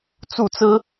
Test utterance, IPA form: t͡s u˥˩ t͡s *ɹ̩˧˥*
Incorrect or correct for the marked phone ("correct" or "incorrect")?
incorrect